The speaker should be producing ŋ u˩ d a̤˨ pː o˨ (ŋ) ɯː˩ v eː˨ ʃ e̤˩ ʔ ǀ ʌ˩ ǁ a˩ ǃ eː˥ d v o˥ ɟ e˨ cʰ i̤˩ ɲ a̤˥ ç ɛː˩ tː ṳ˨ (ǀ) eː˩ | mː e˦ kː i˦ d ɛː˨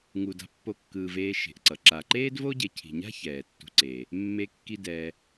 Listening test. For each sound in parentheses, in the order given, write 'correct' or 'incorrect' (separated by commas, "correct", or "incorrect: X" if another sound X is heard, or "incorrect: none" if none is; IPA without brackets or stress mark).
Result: incorrect: kː, correct